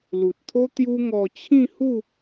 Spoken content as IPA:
lu˨t̚t̪ʰo˦ t̪ju˦ŋɔ˧ t͡ɕʰĩ˥˧hu˥˧

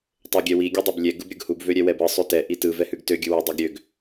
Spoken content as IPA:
tˤøɡʲɛwi ɡʲudˤɛblʲɛ ɡɯbɾʲɯɡhub vøɾʲɛwɛbɯ sˤʉtɛ ʔitɯ vɛhʉɡtø ɡʲɯwy dˤøɡɾʲøɡ

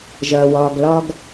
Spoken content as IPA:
ʒɐː˩wɒː˩ɡ lɒ˨ɡ

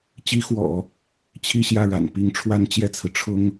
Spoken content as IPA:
t͡ɕi˧˥xwɔ̰˨˩˦ | t͡ɕʰi˥˧ɕjä˥˩ɻa̰˨˩n pi˧˥ŋʈ͡ʂʰwa˥n t͡ɕjɛ˥˩t͡sʰɹ̩˩ ʈ͡ʂʰʊ˥ŋ

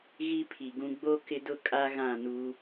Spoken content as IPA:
ɣi˦pʰi˨ɡũ˦ ɡ͡bo˦ kɪ˦dʊ˦kʼa˦ ɣã˦˨nu˦

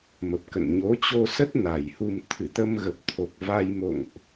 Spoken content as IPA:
mə˨˩p̚kə̰˧˨n ɲo˨˦t͡ɕo˧sə˦˥t̚ na˨˩jhu˧m t̪ʰɨ˧˩t̪ə˧mɣə˨˩p̚ t̪ʰo˨˩k̚va˧jmo̰˧˨ŋʔ

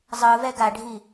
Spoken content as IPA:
zˤɯvɛ ɡaɖʱi

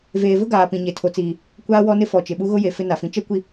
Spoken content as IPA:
veː˨vʊ˦ɡaː˨ pĩ˨ɲe˨ tʰo˨t͡siː˨ | kʷaː˦wɔ˦ nɪ˦fɔ˨t͡ʃɪ˨ɓu˦ ɣʊ˦je˨ fɪ˦na˨fĩ˨ t͡ʃɛ˦kʷi˨

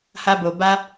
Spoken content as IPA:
ha˦bo˧ba˦

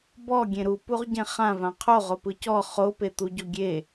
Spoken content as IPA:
bɔ ɡʲẽɾupuʁɟẽ χãvã qʰoʁopɯ cɔ χopet̪u ɟoɡʲe

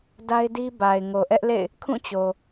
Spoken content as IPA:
da˦ɪ̯di˦ ba˨ɪ̯ŋo˨ ʔɛ˦ʔlḛ˦˨ɪ̯ | kʰũ˦˨ t͡ɕo˨

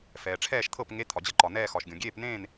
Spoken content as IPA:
fɛː˩ʈ͡ʂʰɛː˥˨ʃt̪ʰɤ˥˨pŋe˧˥˧ t̪ʰɒ˩d͡ʑɤ˥˨ǃɒ˩ nɛː˥˨xɒ˩ʃɡʲõ˩ ɡʲeː˥˨pnẽː˥˨n

